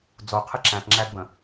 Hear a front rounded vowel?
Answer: no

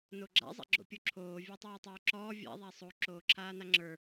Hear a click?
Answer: yes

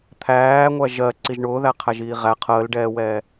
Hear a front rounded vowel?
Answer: no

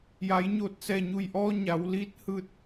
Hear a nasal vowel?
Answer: no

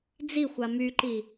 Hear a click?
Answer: yes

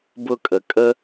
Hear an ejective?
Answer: yes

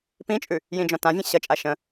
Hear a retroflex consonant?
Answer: no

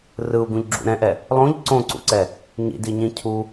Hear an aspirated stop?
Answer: yes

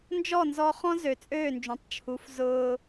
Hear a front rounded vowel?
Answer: yes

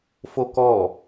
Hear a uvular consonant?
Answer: no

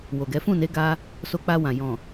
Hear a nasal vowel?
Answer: yes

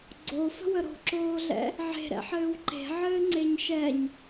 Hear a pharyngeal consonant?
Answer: yes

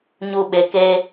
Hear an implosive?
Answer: yes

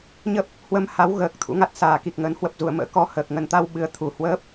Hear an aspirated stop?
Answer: yes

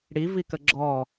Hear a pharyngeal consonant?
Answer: no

